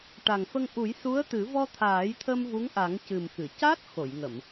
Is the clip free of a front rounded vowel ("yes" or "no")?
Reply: yes